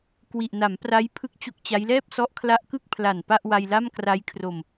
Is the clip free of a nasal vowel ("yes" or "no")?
yes